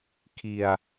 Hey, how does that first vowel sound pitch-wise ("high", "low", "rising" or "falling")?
low